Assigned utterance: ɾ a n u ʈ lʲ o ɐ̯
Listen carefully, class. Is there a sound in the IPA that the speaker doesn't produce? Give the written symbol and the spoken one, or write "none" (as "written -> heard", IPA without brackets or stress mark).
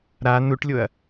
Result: none